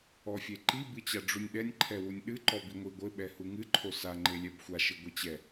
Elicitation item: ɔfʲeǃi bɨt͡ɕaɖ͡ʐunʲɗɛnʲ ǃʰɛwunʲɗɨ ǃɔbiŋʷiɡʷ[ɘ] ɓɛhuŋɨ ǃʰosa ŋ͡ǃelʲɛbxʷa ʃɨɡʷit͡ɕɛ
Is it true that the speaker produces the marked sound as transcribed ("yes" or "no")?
yes